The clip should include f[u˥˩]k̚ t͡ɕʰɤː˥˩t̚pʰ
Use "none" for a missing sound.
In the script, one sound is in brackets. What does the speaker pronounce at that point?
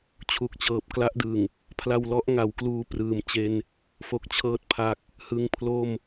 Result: o˥˩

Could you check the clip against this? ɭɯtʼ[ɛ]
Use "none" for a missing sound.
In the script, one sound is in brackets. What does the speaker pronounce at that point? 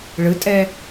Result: ɛ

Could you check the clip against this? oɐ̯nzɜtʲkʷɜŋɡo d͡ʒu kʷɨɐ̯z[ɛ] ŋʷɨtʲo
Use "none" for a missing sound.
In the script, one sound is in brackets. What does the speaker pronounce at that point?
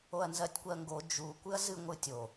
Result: ɨ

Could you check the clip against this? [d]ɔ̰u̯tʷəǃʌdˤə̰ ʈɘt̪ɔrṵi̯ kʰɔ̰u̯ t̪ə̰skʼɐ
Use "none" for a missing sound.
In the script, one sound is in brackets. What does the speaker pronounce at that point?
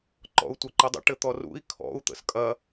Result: ǃ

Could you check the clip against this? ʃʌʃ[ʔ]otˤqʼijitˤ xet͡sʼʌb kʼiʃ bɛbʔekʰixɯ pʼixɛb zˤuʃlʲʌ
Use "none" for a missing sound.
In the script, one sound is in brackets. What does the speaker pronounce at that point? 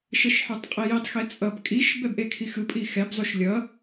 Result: ħ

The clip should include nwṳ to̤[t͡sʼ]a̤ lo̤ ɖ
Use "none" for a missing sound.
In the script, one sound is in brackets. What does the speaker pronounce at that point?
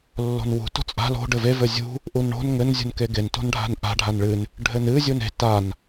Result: t͡sʼ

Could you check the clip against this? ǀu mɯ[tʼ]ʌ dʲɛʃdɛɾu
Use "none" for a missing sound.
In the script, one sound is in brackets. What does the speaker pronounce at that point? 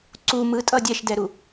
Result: tʼ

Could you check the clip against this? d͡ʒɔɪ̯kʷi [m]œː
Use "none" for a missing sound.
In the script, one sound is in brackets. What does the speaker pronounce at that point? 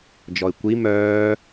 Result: m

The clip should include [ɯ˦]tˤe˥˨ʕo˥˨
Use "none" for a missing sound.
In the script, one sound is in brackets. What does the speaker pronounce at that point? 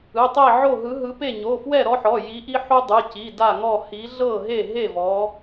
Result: ɯ˩˧˩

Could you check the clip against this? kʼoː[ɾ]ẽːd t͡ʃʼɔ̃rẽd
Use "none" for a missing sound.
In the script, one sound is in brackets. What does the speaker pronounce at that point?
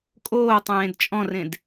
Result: tˤ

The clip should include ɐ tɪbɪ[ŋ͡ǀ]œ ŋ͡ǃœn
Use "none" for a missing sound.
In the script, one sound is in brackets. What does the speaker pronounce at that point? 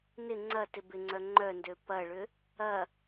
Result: ŋ͡ǀ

